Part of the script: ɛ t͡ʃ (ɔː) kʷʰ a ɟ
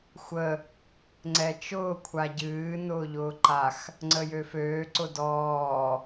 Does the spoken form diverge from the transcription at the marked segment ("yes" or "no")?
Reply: yes